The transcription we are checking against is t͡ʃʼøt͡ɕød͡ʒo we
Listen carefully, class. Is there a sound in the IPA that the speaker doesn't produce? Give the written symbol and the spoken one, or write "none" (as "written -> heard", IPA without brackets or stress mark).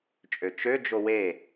t͡ɕ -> t͡ʃ